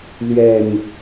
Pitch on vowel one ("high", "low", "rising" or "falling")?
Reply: low